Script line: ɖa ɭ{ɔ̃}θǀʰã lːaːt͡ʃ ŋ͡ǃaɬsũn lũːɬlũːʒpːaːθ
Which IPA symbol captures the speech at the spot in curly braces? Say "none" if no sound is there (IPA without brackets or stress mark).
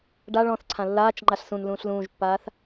ɔ̃